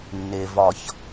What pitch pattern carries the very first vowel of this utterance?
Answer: low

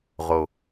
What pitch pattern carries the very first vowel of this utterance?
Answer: low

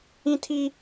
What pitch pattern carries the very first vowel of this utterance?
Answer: high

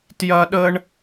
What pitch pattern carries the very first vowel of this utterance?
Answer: high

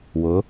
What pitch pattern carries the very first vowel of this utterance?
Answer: rising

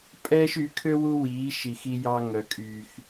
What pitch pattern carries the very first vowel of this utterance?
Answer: high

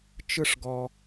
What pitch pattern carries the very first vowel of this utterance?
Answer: high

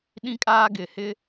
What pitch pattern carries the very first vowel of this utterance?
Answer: high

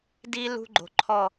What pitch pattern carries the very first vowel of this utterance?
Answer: high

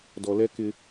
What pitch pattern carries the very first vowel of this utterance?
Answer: low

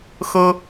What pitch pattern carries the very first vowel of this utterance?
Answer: high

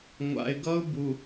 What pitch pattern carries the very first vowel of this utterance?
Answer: low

